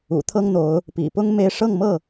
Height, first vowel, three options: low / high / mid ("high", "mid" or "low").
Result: high